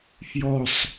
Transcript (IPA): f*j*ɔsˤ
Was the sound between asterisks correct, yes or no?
yes